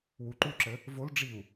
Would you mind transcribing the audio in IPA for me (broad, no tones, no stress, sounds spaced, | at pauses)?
w u ǃ u ǁ ə | v o l ɖ͡ʐ i u̯